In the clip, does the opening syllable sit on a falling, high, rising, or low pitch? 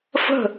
falling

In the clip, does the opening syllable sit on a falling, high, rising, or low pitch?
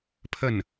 falling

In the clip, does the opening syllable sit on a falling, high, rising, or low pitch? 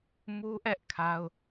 high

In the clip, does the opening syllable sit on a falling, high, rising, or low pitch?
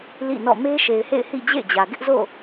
falling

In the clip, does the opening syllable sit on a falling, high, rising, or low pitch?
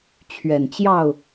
low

